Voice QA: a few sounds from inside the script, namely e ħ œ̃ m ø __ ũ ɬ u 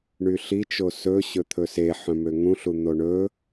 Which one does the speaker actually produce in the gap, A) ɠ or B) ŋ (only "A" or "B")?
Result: B